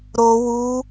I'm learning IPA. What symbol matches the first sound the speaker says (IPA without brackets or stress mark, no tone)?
ɾ